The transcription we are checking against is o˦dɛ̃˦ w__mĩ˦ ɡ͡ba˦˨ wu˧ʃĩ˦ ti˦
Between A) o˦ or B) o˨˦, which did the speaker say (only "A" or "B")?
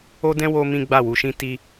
A